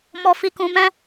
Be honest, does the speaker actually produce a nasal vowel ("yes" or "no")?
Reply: yes